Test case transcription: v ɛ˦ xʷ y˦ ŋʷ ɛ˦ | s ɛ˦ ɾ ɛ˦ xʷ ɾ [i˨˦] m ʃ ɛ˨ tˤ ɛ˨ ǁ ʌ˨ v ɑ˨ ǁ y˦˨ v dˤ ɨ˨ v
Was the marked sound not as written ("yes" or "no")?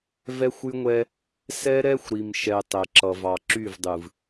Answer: yes